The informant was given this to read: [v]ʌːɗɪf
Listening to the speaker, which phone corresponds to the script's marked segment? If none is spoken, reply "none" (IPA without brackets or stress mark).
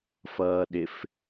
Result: f